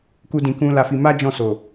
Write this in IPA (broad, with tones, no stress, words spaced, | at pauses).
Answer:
ku˦dĩ˧kũ˦ la˧fi˧ ma˦ d͡ʒɔ̃˦˨so˨